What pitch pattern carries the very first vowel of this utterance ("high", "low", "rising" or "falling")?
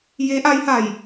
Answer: rising